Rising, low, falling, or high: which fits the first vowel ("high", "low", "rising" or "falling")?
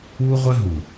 high